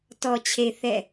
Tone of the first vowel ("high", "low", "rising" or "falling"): low